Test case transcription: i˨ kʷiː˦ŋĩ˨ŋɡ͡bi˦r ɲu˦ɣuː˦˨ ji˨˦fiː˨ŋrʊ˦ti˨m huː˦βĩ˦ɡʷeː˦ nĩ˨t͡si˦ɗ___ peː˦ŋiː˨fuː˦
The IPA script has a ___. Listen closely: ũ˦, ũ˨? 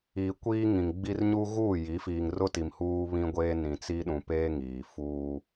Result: ũ˨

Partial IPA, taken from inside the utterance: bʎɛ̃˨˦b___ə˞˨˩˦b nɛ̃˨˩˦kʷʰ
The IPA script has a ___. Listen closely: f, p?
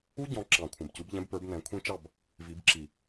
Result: p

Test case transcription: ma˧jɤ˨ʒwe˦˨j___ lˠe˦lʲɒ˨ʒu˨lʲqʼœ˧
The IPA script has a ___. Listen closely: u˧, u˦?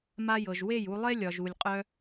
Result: u˧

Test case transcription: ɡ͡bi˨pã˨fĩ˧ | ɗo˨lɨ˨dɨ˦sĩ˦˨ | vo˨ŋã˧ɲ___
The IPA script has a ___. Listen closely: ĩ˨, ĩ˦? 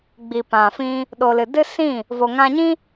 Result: ĩ˦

